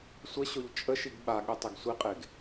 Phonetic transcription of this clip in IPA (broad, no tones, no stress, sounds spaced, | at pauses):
sʷ ə ɕ o ʎ t͡ʃʼ ə ʃ i ɡ ɓ a ɠ e tˤ e ɡ sʷ i qʼ e ɡ